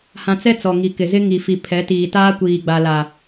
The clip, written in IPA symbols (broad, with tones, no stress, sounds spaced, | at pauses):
h ã˦ t͡s ɛ˦ t͡s ɔ˨ ŋ i˨ k ɪ˨ z ɪ˦ ŋ i˨ f i˨ pʰ ɛ˨˦ t iː˨ t aː˦ kʷ iː˨ ɡ͡b a˨ l a˨